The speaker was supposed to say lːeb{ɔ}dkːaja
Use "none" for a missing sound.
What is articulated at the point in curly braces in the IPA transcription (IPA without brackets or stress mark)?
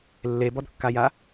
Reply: ɔ